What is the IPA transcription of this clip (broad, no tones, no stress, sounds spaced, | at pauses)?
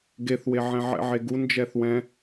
ɡ e θ w e ʕ ɛ̃ ʕ ɛ̰ ʕ e ɡ u n d͡ʒ ɛ θ w ɛ̃